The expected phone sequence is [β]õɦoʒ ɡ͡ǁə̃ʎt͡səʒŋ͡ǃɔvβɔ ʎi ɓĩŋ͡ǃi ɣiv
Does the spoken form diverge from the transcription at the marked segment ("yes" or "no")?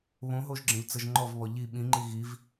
no